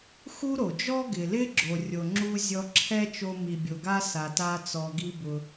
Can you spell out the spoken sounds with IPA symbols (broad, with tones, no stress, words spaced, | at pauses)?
xu˥ɾo˩ d͡ʒɔ˥ɡɪ˩lɪ˥ɡ͡ǁo˩ rʲo˩ŋ͡ǁu˥ zʲɔ˧ǁʰɛ˥t͡ʃo˧ mi˩bʲo˩ɡa˥ sa˩ta˧t͡sɔ˩ ɡi˧bʊ˩